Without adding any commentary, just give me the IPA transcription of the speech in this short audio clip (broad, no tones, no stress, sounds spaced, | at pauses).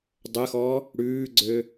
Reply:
dˤ ə x ɔ | ɽ ʉː ɡ͡ǀ ø